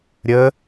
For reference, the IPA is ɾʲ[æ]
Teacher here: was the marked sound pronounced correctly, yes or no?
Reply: no